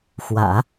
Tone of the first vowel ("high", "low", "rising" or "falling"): low